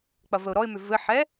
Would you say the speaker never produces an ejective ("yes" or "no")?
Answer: yes